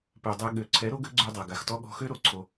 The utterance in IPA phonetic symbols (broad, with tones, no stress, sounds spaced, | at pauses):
p ø˨ dˤ ɛ˧ ɠ ø˨ ǀʰ ɛ˨˦ ɾ o˦ ɡ ø˦ ɡ͡ǀ ø˧ dˤ a˨ ɡ a˨ x t ɔ˦ ɠ ɔ̤˧ x ø˦ ɾ o˨ ǀʰ o˧